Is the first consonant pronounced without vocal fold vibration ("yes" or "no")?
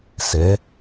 yes